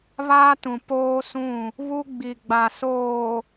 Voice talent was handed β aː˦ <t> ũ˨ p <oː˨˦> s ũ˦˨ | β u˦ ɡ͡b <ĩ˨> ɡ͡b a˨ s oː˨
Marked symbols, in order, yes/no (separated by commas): yes, no, no